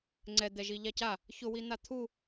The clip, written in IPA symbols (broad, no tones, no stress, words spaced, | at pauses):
ŋ͡ǀɛd̪ɛ ʒiʎaca | çʊwi n̪at̪ʰu